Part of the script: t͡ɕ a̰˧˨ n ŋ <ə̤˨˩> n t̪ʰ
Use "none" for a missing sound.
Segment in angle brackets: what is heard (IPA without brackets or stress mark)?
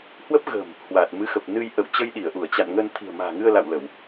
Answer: ə˧